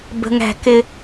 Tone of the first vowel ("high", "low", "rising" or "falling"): low